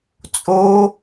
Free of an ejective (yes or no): no